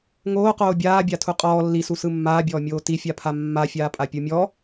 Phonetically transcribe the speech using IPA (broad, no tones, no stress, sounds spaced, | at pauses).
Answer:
ŋ oː q oː bʲ aː bʲ a tʰ u qʼ ɔː lː i s u s ɯ mː aː bʲ ɔː mʲ oː t i fʲ a pʰ a mː a fʲ aː pʼ a pʲ u mʲ ɔ